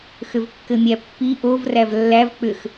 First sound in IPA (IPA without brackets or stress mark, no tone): x